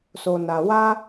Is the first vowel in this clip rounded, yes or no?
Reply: yes